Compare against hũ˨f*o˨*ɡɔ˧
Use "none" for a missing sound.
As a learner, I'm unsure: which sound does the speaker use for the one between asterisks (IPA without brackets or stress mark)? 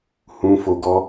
o˨